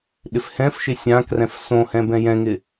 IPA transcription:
ɗɪfhɛ̃fʃɪ sʲãkrɛ̃f sõhɛ̃ bɛ̃jɛ̃ŋɪ

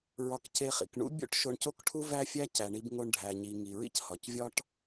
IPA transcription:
ɹɒ˧kce˧χḭ˩k ɳṵ˥bʲo̰˥ʈ ʃo˧ɳco˥kʈʰu˥ væ˥fʲæ˥ cæ˩ɳi˧bŋo˧ɳ ɖʱæ˩ɲi˩ ŋi˩ɹḭ˥chɒ˩c vʲɒ˥ʈ

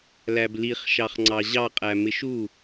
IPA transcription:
læbliχ ʃɑχŋ͡ǀɑʑɑ qʼæmɪʃu

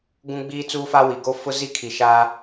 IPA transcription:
ɡũ˦ɡ͡biː˦t͡suː˦fa˦ wi˨ɡo˦ fʊ˦zi˦kʰi˨ ʃaː˦

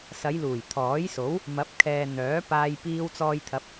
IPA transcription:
sɐ˨˧jluː˨˩j t̪ʰɔː˨˥jso˨˥w | mɐ˨˥p̚kʰɛː˨ n̪œː˨˥paː˧j piː˧wt͡sɔː˧jt̪ʰɐ˨˥p̚

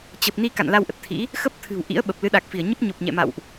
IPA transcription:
t͡ɕə˨˩p̚ni˧ ka̰˧˨nla˧wʔə˨˩t̚t̪ʰḭ˧˥ | xə˦˥p̚ t̪ʰɨ̤˨˩wʔḭ˧˥ə̯ ɓə˨˩p̚lɨ˨˦ɗa˨˩k̚fi˧˩ə̯ ɲə˦˥p̚ɲo˨˩p̚ɲɛ̰˧˨ma̰˧˨wʔ

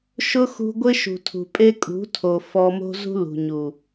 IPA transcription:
ʃʊ˦xṳ˧ ɡʷɪ˦ʃṳ˨tʰṳ˨pʼe˦ kʼṳ˨˦tʰo˨ fɔ˧mo̤˦zṳ˦lṳ˨ ɲu˨

